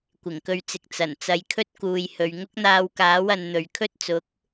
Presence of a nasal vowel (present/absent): absent